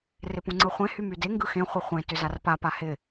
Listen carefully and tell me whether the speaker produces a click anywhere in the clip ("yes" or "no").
yes